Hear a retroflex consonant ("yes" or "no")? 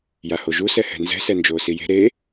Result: no